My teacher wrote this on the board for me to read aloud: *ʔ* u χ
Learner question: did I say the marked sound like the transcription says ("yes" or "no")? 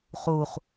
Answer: no